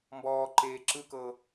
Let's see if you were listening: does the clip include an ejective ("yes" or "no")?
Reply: no